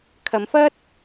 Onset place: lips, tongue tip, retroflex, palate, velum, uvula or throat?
velum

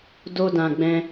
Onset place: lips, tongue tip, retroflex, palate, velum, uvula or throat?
tongue tip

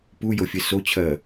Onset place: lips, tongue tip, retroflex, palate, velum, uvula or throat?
lips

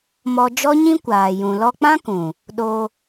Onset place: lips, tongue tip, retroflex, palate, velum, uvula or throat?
lips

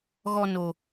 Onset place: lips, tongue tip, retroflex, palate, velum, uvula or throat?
velum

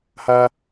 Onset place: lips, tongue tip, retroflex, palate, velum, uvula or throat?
throat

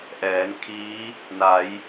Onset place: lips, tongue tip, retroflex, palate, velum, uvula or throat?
throat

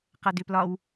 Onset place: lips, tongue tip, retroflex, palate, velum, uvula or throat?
uvula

